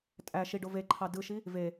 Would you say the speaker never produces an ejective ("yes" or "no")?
no